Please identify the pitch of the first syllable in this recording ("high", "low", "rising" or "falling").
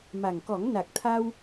low